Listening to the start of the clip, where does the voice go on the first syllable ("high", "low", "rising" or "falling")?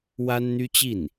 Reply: high